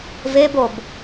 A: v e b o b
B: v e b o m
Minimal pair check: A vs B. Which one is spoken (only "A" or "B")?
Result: A